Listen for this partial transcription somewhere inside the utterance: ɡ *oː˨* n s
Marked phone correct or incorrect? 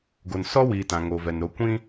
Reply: incorrect